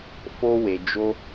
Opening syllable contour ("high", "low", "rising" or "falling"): high